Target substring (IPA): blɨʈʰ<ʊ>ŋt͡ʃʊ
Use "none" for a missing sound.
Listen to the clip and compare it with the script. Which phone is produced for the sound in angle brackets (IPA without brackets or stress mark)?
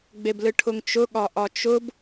ʊ